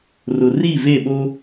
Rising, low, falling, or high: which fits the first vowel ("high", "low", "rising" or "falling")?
low